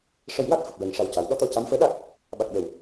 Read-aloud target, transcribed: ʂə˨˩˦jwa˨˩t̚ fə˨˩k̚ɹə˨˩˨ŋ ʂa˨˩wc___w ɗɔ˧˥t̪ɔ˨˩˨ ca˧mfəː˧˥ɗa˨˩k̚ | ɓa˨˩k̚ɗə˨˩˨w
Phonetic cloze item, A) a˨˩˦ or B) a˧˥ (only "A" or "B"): A